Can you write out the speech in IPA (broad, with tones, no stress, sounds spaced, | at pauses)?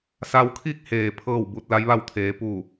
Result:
s a˧ w kʰ i˥˨ k̚ h eː˩ pʰ ɤː˥˨ w b u˧ t̚ l a˧˥ j ʋ a˥˨ w t̪ʰ eː˩˧ p u˧˩